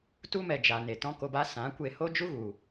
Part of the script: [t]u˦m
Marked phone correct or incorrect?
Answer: correct